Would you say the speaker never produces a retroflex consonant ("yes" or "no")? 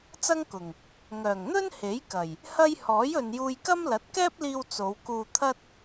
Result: yes